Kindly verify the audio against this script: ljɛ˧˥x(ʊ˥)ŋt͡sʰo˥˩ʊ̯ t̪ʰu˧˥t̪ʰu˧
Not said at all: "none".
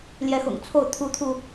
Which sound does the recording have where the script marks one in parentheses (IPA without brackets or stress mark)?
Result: ʊ̰˨˩